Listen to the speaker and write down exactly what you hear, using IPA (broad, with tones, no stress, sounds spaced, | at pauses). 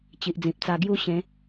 t͡ɕ i˨ ʔ d͡z ĩ˨ p̚ t͡s a˧ ɡ j u˦ ɕ ẽ˨˦